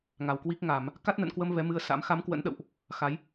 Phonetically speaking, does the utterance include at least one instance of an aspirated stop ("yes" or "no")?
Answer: no